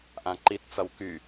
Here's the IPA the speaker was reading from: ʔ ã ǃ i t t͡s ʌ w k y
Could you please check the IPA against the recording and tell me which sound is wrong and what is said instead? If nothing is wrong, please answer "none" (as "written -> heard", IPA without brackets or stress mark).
none